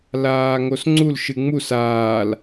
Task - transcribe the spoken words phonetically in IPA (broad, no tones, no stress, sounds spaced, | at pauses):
l aː ŋ o s ŋ͡ǀ u l ʃ ɨ ŋ͡m u s aː l